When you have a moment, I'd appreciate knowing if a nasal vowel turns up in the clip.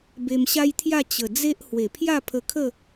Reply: no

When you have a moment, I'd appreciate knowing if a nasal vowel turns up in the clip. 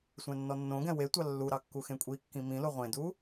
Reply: yes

